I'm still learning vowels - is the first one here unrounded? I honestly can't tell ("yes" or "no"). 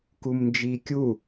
no